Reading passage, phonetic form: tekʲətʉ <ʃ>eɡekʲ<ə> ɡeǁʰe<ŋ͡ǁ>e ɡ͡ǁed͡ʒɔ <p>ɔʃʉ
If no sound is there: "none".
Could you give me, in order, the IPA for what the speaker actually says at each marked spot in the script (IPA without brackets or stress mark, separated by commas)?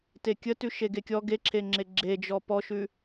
ʃ, ɔ, ŋ͡ǁ, p